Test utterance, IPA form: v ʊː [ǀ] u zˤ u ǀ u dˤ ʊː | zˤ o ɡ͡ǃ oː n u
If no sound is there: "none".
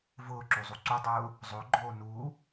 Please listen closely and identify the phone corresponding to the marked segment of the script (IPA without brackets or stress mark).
ǁ